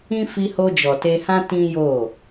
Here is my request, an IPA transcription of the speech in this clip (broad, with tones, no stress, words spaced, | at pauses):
ĩ˦ fi˧ho˧ d͡ʒɔ˨te˧hã˦ tĩ˦jo˦˨